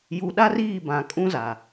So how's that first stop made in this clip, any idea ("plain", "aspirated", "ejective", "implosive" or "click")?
implosive